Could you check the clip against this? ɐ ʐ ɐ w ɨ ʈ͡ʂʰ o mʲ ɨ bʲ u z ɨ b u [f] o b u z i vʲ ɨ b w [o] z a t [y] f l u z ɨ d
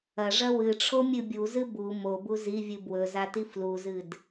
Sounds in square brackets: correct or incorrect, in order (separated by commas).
incorrect, incorrect, incorrect